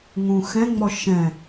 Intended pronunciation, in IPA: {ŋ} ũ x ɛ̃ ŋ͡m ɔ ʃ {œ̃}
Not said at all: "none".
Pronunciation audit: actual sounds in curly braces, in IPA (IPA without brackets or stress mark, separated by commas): ŋ, ɛ̃